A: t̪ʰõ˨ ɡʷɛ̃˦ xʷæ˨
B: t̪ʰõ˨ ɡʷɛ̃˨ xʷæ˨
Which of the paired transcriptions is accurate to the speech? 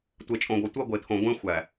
A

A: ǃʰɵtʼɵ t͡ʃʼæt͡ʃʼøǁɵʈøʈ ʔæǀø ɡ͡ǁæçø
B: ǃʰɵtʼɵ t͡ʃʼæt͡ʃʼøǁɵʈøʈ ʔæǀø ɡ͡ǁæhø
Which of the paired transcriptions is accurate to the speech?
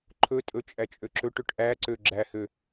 B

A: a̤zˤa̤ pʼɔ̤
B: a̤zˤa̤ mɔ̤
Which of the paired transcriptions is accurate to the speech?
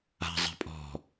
A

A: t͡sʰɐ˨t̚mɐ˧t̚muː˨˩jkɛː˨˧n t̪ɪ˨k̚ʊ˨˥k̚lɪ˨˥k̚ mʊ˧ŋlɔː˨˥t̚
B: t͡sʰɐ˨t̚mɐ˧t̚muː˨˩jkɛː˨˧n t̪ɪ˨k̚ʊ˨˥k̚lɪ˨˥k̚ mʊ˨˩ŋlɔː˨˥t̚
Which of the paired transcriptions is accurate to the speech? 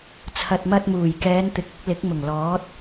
B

